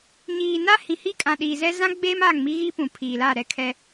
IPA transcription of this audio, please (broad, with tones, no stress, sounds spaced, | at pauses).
ɲ iː˨ n a˦ h ĩ˨ h i˦ kʼ ã˨ ɗ iː˨ z ɛ˦ z ã˦ ɡ͡b eː˦ m a˦˨ ŋ m i˦ ɣ i˦ p ũ˨ pʰ iː˨ l a˦˨ ɾ ɛ˦ kʰ ɛ˦